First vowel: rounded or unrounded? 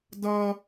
unrounded